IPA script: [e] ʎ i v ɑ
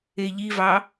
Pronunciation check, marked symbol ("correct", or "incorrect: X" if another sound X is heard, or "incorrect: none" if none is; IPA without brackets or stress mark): correct